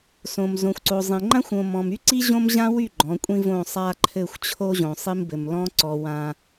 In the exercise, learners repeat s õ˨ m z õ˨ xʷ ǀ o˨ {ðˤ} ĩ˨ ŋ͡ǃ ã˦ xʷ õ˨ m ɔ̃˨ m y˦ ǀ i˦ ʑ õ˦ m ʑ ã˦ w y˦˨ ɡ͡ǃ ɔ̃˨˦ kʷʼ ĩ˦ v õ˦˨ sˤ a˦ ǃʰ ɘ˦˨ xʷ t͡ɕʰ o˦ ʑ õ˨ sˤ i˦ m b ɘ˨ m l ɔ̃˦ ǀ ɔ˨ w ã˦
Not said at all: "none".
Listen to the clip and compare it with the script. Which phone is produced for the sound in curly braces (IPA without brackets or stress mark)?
zˤ